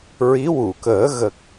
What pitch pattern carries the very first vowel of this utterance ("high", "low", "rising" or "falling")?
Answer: rising